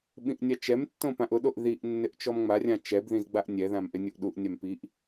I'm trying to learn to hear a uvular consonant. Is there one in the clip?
no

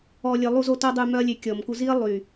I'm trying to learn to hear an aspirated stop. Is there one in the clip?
no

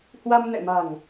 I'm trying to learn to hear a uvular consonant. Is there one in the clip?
no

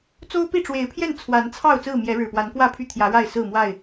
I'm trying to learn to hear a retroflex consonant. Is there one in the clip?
yes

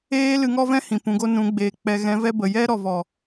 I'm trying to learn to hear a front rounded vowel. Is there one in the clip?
no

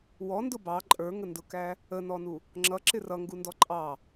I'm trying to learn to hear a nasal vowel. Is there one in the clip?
no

